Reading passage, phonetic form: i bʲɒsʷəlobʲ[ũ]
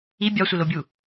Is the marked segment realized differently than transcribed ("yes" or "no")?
yes